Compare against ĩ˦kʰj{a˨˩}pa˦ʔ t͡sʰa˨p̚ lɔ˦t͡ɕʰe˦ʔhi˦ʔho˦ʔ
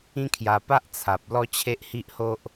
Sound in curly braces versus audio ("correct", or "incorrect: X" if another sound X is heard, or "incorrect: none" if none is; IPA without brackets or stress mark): incorrect: a˧